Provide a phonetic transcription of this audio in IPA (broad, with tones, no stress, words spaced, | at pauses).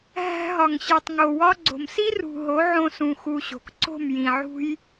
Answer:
ɦæ̤˧ɦɒ˨ŋ ɕi˨tˤŋo˨wɒ˦ ɡ͡ǀo̤˨msi˦rṳ˨ ɦo˨˦ʕõ˧sũ˨ xu˧ɕo̤˨k ǀo̤˦˨mjĩ˨ʕṳ˦j